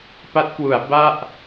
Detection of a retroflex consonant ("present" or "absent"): absent